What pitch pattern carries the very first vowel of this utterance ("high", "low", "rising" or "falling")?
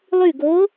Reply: falling